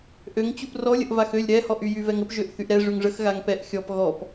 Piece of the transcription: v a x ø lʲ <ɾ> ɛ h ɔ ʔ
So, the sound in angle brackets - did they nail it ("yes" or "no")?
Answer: yes